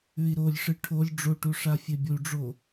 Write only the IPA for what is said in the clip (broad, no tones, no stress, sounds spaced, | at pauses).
ʉ i̯ ɾ o lʲ ʂ ɨ ʈʰ o lʲ ɖ͡ʐ o ʈ u ʂ a fʲ e bʲ u ɖ͡ʐ o